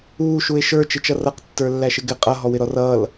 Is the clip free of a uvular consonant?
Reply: no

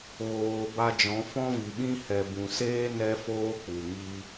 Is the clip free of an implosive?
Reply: no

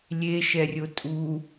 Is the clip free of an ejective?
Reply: no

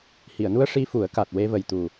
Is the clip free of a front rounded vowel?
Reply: yes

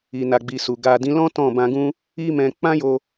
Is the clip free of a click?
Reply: yes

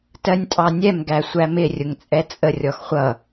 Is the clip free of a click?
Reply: yes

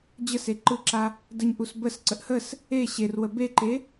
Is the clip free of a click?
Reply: no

